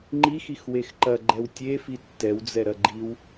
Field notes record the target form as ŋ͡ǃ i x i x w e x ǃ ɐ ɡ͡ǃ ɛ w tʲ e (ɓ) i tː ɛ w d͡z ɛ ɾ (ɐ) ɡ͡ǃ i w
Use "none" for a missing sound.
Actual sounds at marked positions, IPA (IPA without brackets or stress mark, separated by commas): f, ɐ